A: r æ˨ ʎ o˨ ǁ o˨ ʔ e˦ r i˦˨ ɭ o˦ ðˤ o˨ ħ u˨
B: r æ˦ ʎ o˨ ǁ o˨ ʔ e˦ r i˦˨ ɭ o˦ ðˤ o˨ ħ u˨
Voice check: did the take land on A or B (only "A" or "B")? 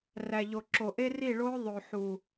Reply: A